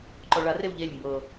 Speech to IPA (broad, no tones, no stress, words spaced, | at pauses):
ǃɔɭarew ʎelʲ mbɤ